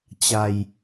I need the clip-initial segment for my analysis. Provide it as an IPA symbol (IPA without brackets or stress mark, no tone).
t͡ɕ